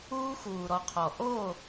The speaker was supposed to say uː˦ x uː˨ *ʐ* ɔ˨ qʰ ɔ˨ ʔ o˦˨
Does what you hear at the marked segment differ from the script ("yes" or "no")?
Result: yes